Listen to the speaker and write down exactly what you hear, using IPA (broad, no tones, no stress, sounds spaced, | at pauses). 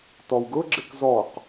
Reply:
t ɔ w ɡ ʊ ɡ͡ǁ ɪ k z ɔ q